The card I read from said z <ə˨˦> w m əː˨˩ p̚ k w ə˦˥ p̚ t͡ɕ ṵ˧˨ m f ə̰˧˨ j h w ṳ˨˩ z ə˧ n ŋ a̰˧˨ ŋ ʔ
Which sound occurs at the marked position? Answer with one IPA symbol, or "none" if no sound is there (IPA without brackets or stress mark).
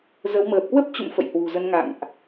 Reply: ə˨˦